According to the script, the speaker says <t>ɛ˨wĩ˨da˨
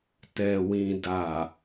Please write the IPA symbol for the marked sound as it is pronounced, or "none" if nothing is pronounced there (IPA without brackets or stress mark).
t